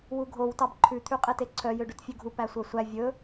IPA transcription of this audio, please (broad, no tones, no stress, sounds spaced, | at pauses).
w u ɡʱ o w t ɑ b ǃʰ ʉ t̪ʰ ʉ qʼ e t e ǀʰ œ j ø ɖ ʉ t fʲ ʉ ɡʱ u p æ sʷ œ sʷ æ vʲ ɵ